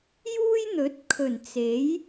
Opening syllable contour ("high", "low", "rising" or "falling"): high